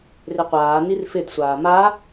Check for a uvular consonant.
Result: present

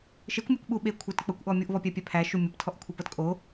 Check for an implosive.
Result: present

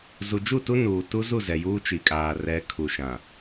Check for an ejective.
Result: present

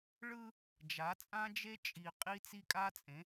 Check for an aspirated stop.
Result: absent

